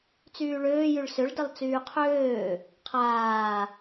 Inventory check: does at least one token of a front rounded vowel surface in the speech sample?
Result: yes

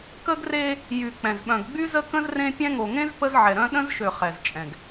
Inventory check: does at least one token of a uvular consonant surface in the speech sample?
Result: yes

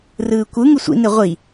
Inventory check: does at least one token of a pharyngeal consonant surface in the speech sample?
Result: no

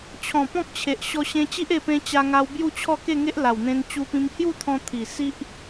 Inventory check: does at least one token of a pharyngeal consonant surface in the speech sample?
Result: no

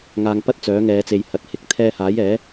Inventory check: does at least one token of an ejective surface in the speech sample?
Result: no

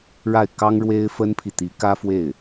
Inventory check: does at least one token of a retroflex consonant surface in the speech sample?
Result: yes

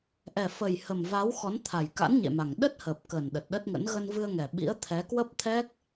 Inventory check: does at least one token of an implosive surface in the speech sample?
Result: yes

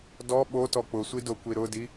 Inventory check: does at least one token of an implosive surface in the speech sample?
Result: yes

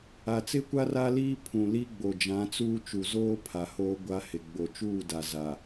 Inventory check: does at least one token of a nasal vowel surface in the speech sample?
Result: yes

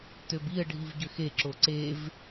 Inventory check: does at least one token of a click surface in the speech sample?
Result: yes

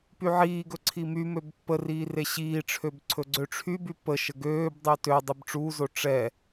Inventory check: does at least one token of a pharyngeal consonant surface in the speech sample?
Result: yes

